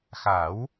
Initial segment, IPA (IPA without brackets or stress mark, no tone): x